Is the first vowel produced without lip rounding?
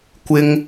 yes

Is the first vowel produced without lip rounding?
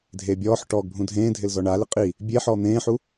yes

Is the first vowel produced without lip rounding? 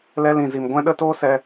yes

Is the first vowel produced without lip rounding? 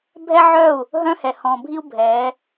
yes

